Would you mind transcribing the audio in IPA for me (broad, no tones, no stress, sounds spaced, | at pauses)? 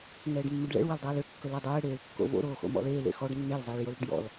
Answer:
ŋ ɛː ɖ mː ɵ ɖ ɭ ɛ̰ ɭ w ɘ l dˤ ɛː l ø kː ɵ l ɛ dˤ ɛː ɽ eː l kː o̰ v o̰ ɾ oː x o̰ m ɔ̰ l eː l ḛ x ɔ ɖ nː e l zˤ eː ɭ j o l ɽ ɵ ɖ j ɔ̰ l